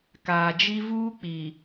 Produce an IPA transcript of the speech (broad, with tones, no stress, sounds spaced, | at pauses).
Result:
k aː˨ d͡ʒ i˦ v uː˦ k͡p iː˨